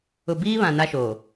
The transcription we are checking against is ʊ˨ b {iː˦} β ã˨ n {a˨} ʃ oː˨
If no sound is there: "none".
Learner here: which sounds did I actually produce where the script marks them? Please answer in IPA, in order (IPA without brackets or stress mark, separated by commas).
iː˦, a˦